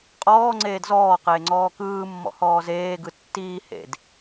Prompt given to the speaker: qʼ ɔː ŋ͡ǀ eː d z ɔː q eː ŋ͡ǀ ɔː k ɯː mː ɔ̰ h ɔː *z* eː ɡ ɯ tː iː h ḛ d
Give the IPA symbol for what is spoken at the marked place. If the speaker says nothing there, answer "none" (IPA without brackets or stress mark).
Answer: z